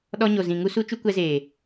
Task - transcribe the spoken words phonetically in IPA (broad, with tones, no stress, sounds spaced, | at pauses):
ɗ ɔ˧ ɲ o˨ z ĩ˨ ŋ u˦ s u˦ t͡ʃ u˦ kʷ ɛ˧ z eː˨